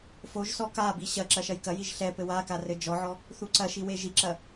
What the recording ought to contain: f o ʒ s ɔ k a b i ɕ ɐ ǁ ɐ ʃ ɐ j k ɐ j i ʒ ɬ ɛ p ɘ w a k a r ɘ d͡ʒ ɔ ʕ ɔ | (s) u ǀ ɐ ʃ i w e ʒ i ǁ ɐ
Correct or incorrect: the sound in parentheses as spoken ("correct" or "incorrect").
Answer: incorrect